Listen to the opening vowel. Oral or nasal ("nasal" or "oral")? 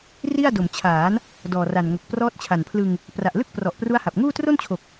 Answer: oral